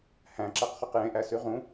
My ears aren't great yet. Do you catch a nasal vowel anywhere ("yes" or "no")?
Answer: yes